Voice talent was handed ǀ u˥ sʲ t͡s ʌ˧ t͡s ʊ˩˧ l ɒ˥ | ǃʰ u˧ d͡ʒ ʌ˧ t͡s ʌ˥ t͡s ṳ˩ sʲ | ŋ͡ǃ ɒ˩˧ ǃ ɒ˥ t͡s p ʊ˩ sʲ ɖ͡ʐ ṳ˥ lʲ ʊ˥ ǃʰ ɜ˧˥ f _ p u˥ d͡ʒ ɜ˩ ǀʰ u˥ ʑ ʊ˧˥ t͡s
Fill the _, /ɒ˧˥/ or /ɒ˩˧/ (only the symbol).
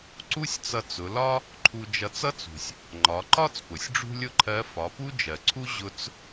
ɒ˩˧